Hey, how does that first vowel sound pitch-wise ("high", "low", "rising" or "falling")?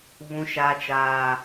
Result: high